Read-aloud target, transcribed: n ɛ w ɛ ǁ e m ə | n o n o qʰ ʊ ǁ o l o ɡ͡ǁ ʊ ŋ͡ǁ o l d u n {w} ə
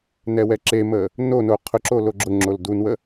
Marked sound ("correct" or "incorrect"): correct